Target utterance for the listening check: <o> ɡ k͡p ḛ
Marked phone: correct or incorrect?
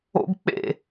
incorrect: o̰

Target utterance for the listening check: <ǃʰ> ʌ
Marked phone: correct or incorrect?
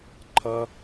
correct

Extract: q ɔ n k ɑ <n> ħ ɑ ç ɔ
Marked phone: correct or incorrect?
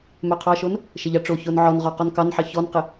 correct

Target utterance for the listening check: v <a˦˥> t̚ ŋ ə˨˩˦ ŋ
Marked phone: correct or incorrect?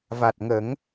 incorrect: a˨˩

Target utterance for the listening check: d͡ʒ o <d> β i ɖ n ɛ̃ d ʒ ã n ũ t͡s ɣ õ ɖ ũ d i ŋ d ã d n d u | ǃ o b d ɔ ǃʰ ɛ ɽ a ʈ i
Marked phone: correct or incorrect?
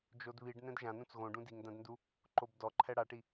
correct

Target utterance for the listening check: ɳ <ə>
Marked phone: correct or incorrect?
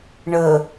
correct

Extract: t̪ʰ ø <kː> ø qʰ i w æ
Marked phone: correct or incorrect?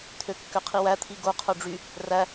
correct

